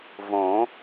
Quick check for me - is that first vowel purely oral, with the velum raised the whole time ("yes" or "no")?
no